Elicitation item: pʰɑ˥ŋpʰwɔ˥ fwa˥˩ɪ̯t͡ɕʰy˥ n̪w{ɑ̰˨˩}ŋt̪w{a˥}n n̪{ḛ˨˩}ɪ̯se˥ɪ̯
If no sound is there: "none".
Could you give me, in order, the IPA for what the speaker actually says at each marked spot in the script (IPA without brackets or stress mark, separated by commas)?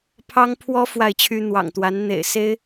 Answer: ɑ̰˨˩, a˧˥, ḛ˨˩